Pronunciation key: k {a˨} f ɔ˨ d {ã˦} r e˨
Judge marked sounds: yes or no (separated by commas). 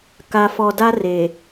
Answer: yes, no